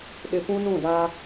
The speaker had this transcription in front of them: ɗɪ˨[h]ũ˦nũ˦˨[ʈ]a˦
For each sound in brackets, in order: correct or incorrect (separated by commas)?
incorrect, incorrect